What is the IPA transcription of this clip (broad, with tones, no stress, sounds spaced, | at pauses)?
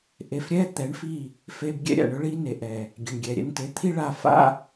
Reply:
ʔ e˧ f ɾʲ ɛ˦ t̪ ɛ˨˦ ɳ f i˦˨ | f e˧ b ɡʲ ɛ̰˦ ɾʲ a̰˨ ɳ ʊ˦ ɭ i˦ n e˨ ʔ ɛ˨ | ɡʲ e˨ ɳ ɡʲ ɛ˨ ɾʲ ɛ̰˧ n t e˨˦ t̪ʰ i˦ ɭ a˧ f a̰˦